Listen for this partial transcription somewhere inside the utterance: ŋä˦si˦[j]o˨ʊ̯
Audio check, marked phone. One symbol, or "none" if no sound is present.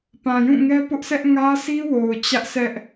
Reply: w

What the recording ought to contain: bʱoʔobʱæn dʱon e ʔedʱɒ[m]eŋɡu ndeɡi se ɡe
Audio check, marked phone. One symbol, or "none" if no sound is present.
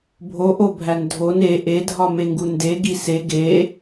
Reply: m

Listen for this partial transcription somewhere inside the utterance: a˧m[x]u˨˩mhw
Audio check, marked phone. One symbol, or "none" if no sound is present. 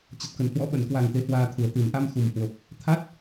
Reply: x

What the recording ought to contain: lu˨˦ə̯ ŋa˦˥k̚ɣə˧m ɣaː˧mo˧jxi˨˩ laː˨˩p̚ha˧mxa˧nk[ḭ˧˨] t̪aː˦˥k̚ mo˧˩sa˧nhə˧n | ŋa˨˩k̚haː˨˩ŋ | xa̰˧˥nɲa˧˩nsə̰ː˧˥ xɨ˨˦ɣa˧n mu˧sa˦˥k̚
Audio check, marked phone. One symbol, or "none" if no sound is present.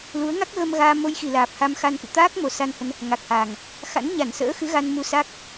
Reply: ɨ̰˧˨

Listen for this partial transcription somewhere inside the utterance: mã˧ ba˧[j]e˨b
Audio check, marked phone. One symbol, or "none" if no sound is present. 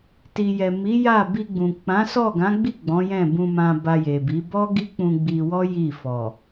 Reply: j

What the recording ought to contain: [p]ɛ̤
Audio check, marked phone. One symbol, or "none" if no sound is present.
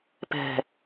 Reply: p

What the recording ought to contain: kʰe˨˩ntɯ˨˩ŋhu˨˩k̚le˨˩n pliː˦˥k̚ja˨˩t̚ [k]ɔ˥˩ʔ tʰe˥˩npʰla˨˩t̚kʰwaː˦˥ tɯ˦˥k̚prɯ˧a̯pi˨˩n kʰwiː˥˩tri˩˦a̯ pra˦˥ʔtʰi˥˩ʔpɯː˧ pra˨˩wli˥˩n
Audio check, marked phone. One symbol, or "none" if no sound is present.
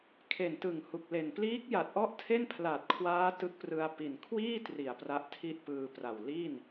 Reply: ʔ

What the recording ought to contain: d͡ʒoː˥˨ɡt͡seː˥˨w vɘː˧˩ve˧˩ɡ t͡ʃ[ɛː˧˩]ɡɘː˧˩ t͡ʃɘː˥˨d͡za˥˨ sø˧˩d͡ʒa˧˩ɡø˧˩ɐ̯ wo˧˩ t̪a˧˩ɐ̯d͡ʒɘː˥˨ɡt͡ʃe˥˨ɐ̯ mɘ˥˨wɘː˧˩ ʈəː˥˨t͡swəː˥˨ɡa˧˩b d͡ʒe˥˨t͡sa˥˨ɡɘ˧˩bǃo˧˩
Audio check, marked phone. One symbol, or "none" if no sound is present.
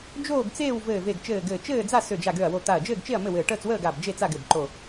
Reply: ɘː˧˩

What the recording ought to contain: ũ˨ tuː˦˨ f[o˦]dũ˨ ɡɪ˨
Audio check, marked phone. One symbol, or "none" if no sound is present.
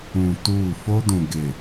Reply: o˦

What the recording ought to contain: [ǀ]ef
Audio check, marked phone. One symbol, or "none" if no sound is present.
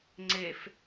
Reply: ŋ͡ǀ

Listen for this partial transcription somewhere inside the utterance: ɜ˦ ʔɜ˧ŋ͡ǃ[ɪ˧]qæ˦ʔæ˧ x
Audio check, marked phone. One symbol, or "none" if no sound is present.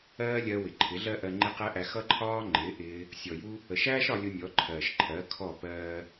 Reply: ɪ˦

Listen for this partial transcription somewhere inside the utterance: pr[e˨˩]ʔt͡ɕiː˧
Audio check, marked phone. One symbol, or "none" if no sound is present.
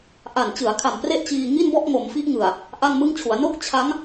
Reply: e˥˩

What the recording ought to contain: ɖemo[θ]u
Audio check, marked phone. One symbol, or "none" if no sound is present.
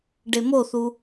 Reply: θ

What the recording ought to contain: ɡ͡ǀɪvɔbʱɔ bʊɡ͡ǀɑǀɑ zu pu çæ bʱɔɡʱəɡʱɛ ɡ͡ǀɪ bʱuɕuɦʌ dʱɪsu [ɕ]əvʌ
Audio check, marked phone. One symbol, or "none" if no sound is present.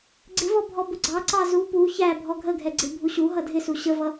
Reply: ɕ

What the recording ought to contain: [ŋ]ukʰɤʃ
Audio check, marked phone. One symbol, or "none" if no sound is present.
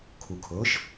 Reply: kʰ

